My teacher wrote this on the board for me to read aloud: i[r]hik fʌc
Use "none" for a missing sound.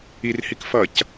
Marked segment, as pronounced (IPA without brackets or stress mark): r